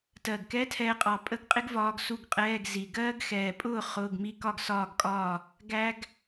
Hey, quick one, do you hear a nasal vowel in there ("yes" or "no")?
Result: no